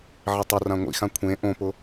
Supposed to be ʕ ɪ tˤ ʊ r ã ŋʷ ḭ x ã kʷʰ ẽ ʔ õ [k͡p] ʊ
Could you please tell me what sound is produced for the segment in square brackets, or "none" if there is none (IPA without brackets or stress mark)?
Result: p